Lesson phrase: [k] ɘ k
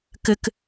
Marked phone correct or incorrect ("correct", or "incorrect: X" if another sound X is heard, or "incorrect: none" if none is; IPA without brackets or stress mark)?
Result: correct